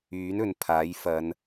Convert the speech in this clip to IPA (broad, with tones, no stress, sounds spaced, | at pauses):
yː˨˥ n ɵ˨ n pʰ aː˨˥ j f ɐ˨˧ n